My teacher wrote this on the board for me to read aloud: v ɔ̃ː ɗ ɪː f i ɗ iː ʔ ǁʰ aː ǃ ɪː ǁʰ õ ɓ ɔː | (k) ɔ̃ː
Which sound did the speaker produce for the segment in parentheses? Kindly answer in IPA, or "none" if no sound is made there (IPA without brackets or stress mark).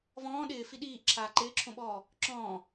ǁ